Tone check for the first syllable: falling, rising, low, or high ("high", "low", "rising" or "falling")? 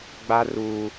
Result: high